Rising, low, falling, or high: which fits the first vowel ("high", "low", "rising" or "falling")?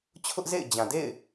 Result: high